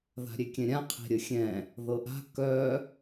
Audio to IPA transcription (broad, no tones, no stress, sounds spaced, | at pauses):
ð a̤ ɾʲ e kʲ ɛ̃ ɾʲ ã qʰ e̤ ɾʲ ə xʲ ɛ̃ | ð ɤ ʔ a̤ k œ